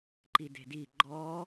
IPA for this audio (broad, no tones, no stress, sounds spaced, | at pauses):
ǃ i d e̤ d i ɡ͡ǃ ɔ